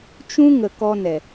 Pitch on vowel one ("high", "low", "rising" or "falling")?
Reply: high